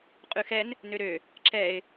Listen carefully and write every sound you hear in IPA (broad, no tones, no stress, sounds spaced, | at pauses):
qʼ ʉ x ɛ n | n ø ɾ ø | ǁ ɛ ɪ̯